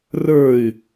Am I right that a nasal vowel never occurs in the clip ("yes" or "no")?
yes